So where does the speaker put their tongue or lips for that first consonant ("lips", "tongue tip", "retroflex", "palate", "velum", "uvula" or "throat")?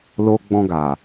tongue tip